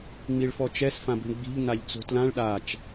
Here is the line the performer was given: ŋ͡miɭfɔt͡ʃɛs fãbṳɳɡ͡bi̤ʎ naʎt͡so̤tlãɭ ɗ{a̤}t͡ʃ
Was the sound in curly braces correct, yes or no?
no